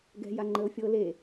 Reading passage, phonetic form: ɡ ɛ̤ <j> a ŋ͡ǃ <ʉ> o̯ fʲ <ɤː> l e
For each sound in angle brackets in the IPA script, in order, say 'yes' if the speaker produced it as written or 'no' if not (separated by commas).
yes, no, yes